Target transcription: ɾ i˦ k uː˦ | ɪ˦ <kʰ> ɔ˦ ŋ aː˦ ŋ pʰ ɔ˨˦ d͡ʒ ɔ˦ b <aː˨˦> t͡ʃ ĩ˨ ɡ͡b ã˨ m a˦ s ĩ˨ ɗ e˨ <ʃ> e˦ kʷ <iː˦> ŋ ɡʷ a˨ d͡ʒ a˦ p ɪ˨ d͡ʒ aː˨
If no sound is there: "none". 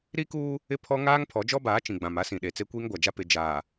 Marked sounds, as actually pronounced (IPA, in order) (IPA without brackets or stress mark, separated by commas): pʰ, aː˨˦, t͡s, iː˦